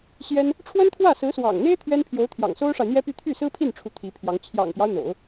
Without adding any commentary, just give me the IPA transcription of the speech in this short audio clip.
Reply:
ɕ j ɛ˥ n | ʈ͡ʂʰ w ə˥ n t̪ʰ w ä˥˩ s ɹ̩˧˥ s w ɑ̰˨˩ ŋ n̪ e˥ ɪ̯ t̪ʰ ɥ ɛ˥ n pʰ j o˧˥ ʊ̯ t̪ʰ j ɑ̰˨˩ ŋ s o˥ ʊ̯ ʂ a˨ ɪ̯ n̪ j ɛ˥ p y˥˧ t̪ʰ y˥˩ s ɹ̩˥ pʰ i˥˩ n ʈ͡ʂʰ u˧˥ t̪ʰ i˧˥ pʰ j ɑ˧˥ ŋ t͡ɕʰ j ɑ̰˨˩ ŋ p j ɑ˦ ʊ̯ n̪ o̰˨˩˦ ʊ̯

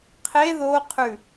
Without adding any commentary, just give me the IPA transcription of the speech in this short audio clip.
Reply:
qʰ e ð o qʰ ʉ

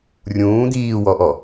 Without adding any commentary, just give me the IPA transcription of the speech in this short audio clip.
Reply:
rʲ ũː d̪ iː w ɔ ʔ ɔ

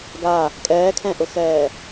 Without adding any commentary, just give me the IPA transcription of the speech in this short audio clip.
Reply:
ɡ a | kʼ ɛː kʰ ɛ̃ ʔ ʊ x ɛː

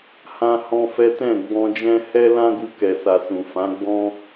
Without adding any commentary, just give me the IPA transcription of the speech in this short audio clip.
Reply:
h ã˦ h ɔ̃˦ f ɛ˦ t ɛ̃˦˨ ɡ͡b ɔ̃˧ d͡ʒ ɛ̃˦ h ɛ˦ l ã˦ ɡ u˧ k ɛ˨ s a˨ s ũ˨ f ã˨˦ ɡ͡b ɔ̃˦

